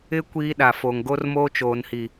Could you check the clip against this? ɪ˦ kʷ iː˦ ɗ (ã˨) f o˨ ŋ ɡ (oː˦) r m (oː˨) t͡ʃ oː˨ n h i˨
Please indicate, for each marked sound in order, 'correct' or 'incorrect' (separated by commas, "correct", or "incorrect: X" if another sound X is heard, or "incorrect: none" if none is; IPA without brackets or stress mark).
incorrect: a˨, incorrect: o˦, incorrect: oː˦